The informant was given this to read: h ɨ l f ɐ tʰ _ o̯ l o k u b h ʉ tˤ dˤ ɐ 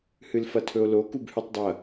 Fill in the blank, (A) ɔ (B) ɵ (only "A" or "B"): B